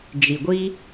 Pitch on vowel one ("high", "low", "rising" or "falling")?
low